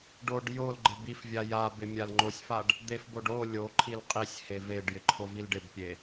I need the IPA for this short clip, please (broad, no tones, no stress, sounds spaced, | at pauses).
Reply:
ɖ o ɖ j o l ɡ͡ǃ ɪ b i f vʲ a j a b ɪ mʲ a l ŋ͡ǃ o sʲ f a ɖ | d̪ e f b o ɖ o lʲ o ǃʰ i l qʼ i sʲ h e v e ɖ j ɪ ǃʰ o v i l ɖ ɪ b pʲ e